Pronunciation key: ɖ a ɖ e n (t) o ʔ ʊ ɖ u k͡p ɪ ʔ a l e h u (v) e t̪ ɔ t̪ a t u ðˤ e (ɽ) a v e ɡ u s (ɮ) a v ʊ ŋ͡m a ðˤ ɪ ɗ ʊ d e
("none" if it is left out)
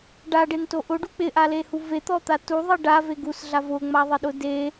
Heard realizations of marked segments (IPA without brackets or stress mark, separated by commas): t, v, ɖ, ɮ